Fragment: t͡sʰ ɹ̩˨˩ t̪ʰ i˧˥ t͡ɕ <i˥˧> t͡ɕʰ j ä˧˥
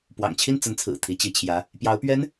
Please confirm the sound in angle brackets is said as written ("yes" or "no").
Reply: no